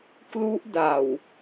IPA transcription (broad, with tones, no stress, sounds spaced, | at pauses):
k l u˦˥ ʔ d a˨˩ w